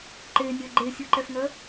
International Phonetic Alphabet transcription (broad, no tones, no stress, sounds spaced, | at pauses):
ǃ e nʲ œ ɡ͡ǃ e sʲ u ǃ ɛ f ŋ œ